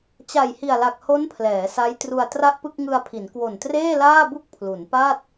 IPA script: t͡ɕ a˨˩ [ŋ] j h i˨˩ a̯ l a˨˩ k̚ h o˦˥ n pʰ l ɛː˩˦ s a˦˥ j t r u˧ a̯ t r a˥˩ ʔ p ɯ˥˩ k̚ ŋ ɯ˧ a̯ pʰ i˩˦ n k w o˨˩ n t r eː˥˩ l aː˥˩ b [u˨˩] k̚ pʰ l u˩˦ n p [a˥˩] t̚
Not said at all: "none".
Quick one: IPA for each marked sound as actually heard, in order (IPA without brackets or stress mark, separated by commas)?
none, u˥˩, a˥˩